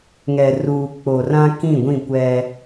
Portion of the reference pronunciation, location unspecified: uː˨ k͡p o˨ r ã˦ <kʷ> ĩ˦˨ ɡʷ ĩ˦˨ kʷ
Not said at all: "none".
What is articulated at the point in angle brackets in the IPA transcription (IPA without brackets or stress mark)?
k